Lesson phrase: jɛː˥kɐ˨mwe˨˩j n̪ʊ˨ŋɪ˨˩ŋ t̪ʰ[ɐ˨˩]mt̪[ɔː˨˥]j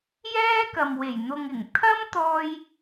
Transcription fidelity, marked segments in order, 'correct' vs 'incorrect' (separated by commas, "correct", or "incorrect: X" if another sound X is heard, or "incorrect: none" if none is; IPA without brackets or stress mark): incorrect: ɐ˥, incorrect: ɔː˧